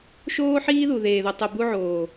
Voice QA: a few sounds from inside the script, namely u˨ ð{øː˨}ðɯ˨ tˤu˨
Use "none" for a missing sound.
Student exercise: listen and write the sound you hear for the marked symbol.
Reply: eː˨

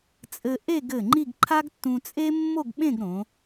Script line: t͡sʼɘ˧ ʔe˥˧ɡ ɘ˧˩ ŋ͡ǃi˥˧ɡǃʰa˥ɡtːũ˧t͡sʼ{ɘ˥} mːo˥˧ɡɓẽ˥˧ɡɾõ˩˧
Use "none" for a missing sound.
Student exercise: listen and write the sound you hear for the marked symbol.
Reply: e˥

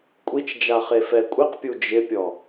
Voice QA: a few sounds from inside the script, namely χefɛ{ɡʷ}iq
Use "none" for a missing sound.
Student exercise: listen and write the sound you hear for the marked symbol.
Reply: kʷʼ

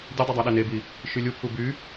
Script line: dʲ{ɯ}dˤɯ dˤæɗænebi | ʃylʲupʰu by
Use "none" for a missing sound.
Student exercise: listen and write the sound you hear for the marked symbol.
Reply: ɯ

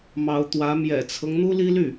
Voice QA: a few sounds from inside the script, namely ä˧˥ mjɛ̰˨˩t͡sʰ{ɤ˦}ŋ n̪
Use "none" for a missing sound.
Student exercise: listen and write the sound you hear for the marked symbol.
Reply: ɤ˦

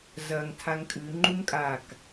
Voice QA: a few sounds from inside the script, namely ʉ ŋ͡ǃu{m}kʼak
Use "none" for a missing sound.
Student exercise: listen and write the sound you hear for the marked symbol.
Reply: m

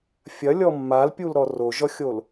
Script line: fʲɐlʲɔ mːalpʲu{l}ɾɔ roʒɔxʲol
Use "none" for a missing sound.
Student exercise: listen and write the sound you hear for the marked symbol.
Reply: l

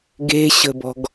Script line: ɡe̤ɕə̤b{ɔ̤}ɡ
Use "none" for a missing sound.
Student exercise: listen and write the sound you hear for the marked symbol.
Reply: ɔ̤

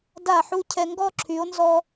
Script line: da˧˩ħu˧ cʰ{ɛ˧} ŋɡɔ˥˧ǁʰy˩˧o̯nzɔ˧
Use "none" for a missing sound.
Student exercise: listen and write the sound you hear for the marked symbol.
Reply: ɛ˧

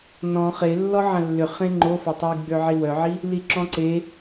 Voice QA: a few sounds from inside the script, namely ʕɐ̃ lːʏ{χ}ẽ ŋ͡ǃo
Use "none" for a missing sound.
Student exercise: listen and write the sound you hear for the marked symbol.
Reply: χ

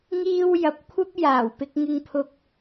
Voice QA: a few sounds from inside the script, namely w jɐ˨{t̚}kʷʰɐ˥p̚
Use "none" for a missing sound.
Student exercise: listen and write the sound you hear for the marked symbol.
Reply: p̚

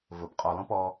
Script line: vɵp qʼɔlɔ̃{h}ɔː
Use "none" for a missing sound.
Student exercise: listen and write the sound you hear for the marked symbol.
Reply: p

